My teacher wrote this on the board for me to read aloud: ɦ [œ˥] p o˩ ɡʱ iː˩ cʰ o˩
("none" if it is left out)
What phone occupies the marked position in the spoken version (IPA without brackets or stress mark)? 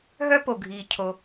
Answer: œ˥